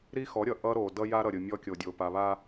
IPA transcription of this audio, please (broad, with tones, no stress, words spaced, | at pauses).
ɾi˦xɔ˨˦ɾʲʌ˨ ʔʌ˦ɾo˨ dʌ˦ja˦ɾʌ˨ ɾʲɯ˨ mʲɔ˦kʲo˨dʲo˨ pa˨βa˦